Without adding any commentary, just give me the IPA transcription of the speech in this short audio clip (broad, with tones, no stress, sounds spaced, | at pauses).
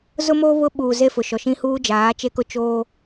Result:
z ʊ˦ m oː˦ β ʊ˦ ɓ uː˨ z e˦ f ʊ˨ ʃ ɔ˨ ʃ ĩ˦ h uː˦ d͡ʒ aː˨˦ t͡ʃ e˦ k ʊ˦ t͡ʃ oː˦